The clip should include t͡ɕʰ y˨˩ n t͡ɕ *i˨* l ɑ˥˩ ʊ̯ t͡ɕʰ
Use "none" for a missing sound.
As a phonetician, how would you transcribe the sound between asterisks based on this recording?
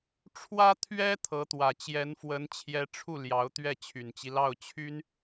i˦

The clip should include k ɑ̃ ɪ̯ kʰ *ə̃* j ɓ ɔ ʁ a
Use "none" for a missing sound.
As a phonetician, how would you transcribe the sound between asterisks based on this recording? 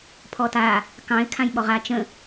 ã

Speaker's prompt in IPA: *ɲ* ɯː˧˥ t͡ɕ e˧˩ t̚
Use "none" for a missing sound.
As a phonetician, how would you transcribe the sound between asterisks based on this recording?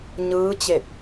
ɲ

